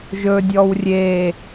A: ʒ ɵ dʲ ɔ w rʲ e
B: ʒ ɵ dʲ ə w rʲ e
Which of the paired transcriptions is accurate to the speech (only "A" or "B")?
A